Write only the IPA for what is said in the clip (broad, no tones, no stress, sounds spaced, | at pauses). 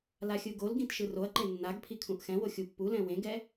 l a xʲ ɯ ɡ o l ɡ ĩ t ʃ ɯ r o ɐ̯ ǃ e nː a ɡ pʰ i kʰ ũ ʔ x ɛ̃ w o xʲ u pː u l ɛ̃ w ẽ ɡ ɛ